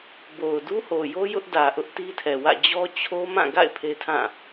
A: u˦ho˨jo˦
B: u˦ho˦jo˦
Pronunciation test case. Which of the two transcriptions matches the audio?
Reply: A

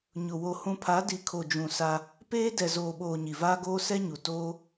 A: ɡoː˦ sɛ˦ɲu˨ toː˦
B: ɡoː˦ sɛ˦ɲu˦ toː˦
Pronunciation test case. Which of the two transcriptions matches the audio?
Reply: A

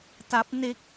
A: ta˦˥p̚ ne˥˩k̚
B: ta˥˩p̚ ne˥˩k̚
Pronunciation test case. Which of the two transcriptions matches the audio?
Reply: A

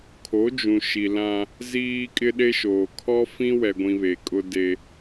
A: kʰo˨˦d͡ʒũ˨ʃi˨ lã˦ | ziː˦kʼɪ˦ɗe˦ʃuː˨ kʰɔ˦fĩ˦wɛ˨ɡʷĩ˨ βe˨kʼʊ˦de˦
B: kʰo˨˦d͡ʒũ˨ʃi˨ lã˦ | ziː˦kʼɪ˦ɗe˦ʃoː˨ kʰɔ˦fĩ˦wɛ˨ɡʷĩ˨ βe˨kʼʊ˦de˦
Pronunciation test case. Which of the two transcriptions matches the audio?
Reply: B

